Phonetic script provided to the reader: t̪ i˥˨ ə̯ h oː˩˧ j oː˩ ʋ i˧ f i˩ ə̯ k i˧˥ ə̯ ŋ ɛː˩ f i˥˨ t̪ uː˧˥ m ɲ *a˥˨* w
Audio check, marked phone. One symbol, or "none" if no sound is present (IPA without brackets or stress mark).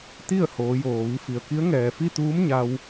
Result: a˧